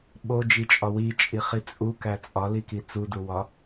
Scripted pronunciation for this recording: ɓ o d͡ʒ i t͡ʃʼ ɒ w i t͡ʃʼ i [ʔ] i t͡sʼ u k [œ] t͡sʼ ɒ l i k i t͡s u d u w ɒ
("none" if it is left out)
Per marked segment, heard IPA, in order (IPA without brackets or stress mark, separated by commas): χ, æ